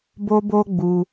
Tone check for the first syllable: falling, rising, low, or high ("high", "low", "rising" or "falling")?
high